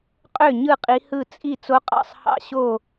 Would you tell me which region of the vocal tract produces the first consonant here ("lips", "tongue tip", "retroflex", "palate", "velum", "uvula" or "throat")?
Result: uvula